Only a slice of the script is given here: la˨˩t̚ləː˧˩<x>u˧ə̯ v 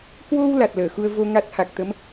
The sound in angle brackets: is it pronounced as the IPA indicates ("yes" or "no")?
yes